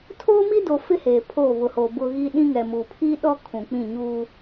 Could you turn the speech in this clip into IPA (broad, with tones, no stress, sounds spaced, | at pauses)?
tʰ oː˦ m i˦ d o˨ f ɪ˦ h eː˨ pʰ o˦˨ β ʊ˨ h o˨ b ʊ˦ ɣ i˦ ɗ ĩ˦ ŋ ɛ˨ m u˨ pʰ i˦ ɗ ɔ˦ kʰ ũ˨ k͡p ĩ˦˨ ɲ uː˦